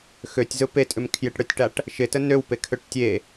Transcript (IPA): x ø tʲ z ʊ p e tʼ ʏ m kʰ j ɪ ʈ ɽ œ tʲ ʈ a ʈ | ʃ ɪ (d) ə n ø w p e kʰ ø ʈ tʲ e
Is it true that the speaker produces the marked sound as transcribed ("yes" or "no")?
no